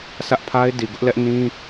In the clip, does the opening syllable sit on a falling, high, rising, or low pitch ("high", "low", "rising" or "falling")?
high